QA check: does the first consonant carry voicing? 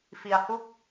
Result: no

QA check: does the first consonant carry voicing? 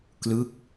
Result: no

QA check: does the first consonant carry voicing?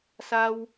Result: no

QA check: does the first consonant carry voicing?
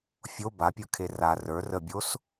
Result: no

